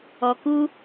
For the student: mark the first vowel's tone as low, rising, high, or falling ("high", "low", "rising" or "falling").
low